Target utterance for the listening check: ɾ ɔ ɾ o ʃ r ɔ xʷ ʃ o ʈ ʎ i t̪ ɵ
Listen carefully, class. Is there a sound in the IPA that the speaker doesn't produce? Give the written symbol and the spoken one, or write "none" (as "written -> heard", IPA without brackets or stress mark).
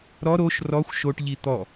ɵ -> ɔ